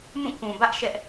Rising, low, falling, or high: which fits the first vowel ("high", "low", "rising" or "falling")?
falling